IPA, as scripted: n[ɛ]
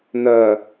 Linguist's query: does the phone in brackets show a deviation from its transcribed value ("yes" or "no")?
yes